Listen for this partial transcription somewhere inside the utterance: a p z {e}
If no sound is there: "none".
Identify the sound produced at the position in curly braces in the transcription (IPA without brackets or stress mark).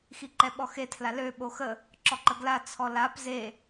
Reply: e